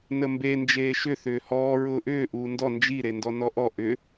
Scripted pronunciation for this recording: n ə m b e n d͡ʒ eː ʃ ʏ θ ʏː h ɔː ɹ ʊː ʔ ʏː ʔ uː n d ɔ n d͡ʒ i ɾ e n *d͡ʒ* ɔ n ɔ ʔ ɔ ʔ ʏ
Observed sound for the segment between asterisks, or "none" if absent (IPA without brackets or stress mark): d